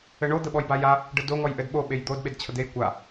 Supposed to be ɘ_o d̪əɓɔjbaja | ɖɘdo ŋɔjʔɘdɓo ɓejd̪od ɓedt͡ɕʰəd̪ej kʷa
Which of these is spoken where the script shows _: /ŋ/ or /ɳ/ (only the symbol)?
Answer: ɳ